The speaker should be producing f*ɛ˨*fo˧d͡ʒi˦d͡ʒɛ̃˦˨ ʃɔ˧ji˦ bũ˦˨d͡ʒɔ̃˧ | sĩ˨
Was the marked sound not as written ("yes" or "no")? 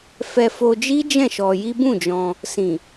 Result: yes